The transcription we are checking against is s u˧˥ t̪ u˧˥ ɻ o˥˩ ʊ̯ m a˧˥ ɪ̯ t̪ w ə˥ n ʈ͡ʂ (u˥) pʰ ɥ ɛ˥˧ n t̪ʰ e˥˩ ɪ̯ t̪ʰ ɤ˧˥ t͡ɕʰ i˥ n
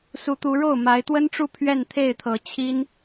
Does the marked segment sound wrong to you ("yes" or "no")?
yes